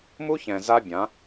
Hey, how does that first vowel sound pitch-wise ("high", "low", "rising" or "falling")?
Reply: high